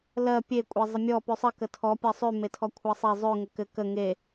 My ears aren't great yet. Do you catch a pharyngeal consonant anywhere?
no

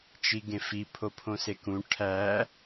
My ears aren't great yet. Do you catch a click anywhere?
no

